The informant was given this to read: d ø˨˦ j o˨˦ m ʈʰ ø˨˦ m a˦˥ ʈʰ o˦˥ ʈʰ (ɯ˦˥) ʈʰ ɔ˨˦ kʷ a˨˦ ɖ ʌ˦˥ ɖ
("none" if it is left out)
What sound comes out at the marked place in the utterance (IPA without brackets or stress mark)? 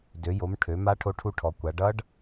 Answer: u˦˥